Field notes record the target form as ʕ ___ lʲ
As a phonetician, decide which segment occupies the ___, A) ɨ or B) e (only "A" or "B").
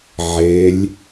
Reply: B